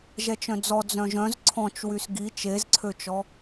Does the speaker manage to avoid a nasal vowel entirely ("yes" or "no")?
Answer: no